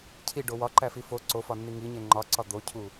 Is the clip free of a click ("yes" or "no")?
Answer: no